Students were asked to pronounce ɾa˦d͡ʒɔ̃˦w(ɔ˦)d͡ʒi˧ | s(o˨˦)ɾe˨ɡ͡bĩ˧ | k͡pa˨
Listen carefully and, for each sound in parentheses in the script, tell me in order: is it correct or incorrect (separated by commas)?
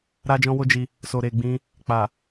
incorrect, incorrect